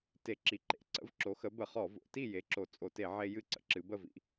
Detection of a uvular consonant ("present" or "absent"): present